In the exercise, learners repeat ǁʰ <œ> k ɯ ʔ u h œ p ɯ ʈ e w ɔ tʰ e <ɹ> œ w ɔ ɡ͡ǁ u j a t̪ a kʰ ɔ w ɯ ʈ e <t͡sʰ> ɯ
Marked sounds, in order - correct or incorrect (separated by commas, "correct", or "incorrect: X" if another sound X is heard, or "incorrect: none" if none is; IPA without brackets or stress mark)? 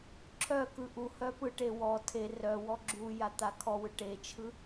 correct, incorrect: r, incorrect: t͡ʃʰ